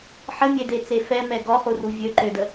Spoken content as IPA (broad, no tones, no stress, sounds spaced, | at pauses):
ħ ə mʲ e d e t͡s e f ɛ m ɛ ɡ ɔ χ u r u vʲ ø ǃ ø d ə